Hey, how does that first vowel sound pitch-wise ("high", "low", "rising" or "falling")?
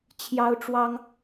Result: high